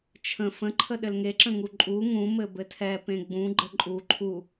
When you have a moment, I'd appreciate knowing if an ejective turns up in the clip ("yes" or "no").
yes